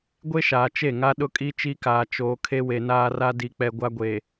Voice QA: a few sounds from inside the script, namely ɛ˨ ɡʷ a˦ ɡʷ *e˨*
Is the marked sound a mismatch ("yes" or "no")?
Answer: yes